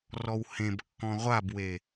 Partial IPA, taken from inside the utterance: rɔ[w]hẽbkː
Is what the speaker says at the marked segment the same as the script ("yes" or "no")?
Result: yes